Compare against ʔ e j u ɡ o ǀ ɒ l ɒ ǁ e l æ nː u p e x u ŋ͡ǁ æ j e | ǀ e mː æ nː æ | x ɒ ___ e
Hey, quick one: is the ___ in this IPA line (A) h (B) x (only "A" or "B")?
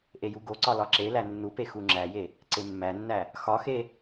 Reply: B